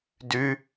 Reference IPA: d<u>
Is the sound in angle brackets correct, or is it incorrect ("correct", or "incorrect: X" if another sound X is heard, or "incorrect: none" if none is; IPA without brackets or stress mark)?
incorrect: ʉ